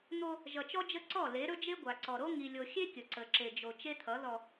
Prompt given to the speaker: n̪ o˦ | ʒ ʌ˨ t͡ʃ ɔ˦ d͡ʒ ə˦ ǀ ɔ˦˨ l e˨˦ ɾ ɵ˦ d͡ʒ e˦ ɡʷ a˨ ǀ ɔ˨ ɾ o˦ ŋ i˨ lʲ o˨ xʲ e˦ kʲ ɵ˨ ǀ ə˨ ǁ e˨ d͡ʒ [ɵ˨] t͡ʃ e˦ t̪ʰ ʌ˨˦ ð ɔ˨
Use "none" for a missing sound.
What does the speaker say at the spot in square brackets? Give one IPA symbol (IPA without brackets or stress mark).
o˨